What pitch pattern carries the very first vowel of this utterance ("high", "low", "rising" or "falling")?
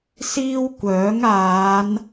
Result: high